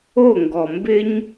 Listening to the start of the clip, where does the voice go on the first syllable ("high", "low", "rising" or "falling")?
falling